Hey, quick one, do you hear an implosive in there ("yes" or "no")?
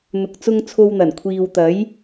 no